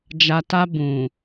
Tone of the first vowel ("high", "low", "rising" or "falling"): low